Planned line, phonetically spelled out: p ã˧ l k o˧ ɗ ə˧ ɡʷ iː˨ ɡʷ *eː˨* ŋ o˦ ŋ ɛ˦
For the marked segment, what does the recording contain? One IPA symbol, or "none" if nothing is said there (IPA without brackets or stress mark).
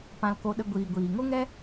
iː˨